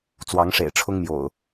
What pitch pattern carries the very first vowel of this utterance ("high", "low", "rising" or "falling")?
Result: rising